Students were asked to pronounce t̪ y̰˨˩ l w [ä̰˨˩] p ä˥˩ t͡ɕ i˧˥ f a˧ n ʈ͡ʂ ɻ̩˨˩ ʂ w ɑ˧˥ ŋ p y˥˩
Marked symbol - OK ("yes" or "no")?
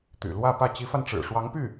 no